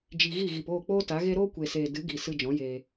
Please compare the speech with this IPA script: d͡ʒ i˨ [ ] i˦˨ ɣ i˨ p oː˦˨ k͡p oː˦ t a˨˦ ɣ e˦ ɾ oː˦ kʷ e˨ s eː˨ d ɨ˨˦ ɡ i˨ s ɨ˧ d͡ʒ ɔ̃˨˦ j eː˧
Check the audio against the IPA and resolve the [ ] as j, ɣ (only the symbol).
ɣ